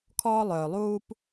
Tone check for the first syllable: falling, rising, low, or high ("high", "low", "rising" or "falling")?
high